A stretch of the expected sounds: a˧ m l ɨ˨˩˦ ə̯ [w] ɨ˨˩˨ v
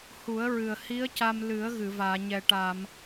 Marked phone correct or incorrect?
incorrect